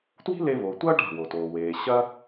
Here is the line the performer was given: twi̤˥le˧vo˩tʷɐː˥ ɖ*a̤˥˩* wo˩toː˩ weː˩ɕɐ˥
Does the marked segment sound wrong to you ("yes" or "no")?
no